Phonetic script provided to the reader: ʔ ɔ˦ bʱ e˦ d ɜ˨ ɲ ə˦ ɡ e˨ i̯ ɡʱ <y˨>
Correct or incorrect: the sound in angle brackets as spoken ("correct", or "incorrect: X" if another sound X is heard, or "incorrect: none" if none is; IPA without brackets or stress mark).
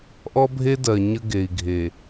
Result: incorrect: e˨